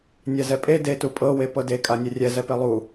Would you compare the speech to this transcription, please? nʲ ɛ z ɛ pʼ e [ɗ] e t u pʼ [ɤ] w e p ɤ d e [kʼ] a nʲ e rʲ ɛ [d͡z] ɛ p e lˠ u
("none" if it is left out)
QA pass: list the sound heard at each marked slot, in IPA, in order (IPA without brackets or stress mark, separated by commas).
d, ɤ, kʼ, z